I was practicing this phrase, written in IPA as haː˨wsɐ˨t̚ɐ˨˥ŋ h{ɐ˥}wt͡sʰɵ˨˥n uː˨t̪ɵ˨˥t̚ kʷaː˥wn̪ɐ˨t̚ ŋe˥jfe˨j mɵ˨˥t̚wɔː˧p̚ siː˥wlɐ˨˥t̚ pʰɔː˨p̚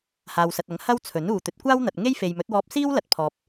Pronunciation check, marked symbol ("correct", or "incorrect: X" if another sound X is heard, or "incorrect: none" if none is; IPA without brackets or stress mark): correct